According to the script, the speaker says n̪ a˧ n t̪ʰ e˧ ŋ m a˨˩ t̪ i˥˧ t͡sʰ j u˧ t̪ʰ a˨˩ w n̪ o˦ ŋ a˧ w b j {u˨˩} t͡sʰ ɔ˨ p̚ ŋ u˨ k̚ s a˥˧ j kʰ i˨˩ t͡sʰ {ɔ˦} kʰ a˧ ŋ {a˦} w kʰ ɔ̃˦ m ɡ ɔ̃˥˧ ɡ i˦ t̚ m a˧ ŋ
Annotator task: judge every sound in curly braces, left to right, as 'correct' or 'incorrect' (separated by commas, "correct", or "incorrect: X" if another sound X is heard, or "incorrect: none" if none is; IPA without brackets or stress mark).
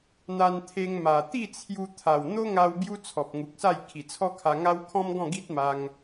incorrect: u˦, correct, correct